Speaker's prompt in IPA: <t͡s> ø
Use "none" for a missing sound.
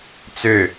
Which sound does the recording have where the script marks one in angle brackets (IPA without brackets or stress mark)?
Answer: t͡s